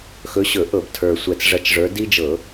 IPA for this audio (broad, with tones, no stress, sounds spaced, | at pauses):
x ɵ˨˦ ɕ ɵ˧˩˧ ʔ ɤ˧˩˧ b tʰ ə˞˨˩ sʷ ɛ˨˩ t͡s ʐ ɐ˨˦ t͡ʃ ʐ ə˞˨˦ d i˦ d͡ʒ ɤ˧˩˧